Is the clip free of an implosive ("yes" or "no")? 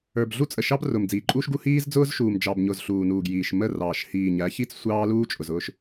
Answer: yes